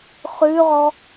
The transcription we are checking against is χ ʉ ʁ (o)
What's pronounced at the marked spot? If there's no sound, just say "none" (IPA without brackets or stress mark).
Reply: ɔ